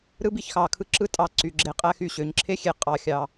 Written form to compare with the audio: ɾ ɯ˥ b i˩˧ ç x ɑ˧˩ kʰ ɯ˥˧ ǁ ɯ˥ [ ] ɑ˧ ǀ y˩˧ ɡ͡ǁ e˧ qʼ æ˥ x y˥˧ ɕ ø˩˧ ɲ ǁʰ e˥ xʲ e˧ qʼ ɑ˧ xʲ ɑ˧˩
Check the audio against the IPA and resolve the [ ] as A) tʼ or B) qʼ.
A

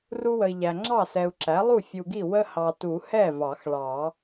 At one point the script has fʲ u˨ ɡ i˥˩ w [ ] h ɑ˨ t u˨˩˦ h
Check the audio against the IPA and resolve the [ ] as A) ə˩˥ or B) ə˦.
B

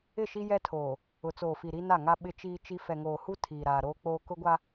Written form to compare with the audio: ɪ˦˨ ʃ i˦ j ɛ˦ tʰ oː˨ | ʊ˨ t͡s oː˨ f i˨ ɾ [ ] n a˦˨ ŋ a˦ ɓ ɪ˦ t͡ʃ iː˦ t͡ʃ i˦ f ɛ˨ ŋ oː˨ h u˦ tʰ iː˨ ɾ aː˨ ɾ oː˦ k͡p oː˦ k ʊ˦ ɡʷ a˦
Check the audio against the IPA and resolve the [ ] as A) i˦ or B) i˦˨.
A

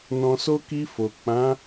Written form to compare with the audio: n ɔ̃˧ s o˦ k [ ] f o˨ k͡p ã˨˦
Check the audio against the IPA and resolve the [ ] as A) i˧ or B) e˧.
A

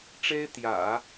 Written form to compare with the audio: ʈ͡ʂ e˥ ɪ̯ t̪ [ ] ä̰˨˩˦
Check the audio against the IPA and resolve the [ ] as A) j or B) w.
A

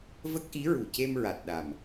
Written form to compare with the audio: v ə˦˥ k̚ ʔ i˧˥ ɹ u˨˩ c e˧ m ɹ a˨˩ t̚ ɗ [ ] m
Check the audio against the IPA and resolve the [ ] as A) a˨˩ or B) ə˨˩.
A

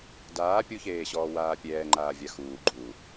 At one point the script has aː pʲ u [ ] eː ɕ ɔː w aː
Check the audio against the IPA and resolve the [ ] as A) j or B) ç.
B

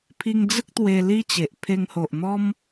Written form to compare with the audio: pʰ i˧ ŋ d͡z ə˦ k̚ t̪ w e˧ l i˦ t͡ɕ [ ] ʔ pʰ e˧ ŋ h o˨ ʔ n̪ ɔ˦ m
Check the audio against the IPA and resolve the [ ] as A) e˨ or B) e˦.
A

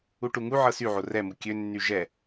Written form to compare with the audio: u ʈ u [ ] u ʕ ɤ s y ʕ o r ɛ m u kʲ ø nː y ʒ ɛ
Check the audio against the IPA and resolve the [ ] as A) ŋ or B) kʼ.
A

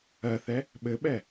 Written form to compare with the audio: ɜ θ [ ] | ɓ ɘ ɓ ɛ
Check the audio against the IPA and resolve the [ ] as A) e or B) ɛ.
B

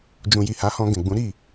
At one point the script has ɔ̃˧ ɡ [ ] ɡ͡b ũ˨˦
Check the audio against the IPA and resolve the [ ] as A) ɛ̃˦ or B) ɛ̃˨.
B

